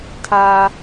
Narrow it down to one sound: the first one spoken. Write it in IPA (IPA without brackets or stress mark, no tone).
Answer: tʰ